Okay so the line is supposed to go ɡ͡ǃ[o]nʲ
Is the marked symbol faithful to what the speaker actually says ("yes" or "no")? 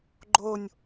yes